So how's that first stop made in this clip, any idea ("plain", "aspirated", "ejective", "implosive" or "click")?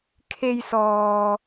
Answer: aspirated